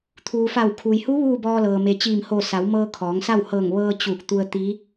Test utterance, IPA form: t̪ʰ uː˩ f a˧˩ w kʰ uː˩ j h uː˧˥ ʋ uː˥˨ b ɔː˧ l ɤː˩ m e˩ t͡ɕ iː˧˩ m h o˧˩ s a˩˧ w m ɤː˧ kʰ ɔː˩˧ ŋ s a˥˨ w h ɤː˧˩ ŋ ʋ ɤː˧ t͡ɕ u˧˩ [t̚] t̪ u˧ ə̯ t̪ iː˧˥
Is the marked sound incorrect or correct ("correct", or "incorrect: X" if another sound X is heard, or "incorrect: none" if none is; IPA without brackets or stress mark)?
incorrect: k̚